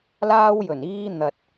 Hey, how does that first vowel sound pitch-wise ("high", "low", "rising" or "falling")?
high